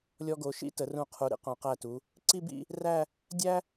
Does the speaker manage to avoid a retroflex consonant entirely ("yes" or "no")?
yes